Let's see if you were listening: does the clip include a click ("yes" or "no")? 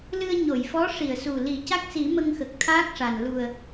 no